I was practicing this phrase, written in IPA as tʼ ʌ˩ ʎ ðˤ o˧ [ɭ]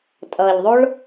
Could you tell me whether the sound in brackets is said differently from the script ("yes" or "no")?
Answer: no